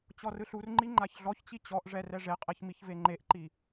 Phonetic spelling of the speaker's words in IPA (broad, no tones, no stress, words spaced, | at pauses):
t͡ɕɔrɯɬurŋ͡ǃi ŋ͡ǃaçɮɔçt͡ɕi t͡ɕɔʔʐɛ rɛʐeqʼeç miçveŋ͡ǃeʔǃi